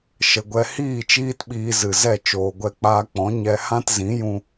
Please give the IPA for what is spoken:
ʃə˨ɡʷɛ˧hiː˦˨ t͡ʃiː˦tɓiː˧zɨ˨zɛ˦˨ t͡ʃoː˨ɡʷɛ˧k͡paː˧k͡pɔ̃˨˦ ɲɛ˧hã˦t zĩ˨˦jũ˧

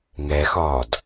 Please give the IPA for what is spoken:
ŋɛxɒːd

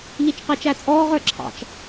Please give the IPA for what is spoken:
ʎit͡ʃqɪːt͡ʃæt͡sʼɔːʁ ə˞ǁʰɑ̰t͡ʃ

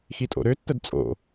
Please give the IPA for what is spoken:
xitʼo̰ɾøtːəd t͡sʼo̰

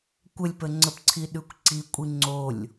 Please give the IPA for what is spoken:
kʷəlʲpəŋ͡ǀəpǀʰi ɗʉkʷǀikʷʼi ŋ͡ǀolʲ

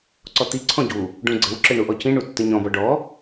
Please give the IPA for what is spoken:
ǀɔt̪i ǀʰɔ̃ɟu | ɖũɡ͡ǀɘw ǁɘɳuʔɔcĩ ɳutːɘɲɔ̃ bɔɖɔ

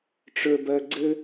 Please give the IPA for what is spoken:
ʈ͡ʂə˞bɜɡ͡ǀɘ

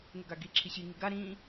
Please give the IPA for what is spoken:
ŋeɡaɡi ǁʰiɕi ŋiɡa ɾĩ

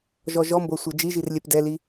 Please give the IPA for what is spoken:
ʒɔʒɔmbɤ sʷɤd͡ʒiʒir lʲɛpdɛli

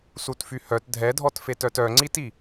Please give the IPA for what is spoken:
sutfyhœt dʱɛdʱɔtfetœt œŋ͡ǀiti

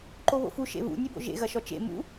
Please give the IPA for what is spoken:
ǃoβo̰fu ʃḛβṵ nʲebo̰ʒḛ ɣɐʃɔt͡ʃḛ mṵ

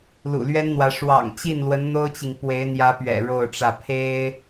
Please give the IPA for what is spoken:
lṵ˨˩lɥɛ˥nn̪wä˧˥ ʂwɑ̰˨˩ŋt͡ɕi˥˩nlwə˧˥n n̪o˥ʊ̯t͡ɕi˨ŋ pwe˧˥ɪ̯n̪jä˧˥pɥɛ̰˨˩ ɻo˥˧ʊ̯ʈ͡ʂä˥˩ pʰe˥ɪ̯

